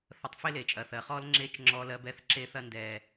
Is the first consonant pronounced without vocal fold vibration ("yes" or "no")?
yes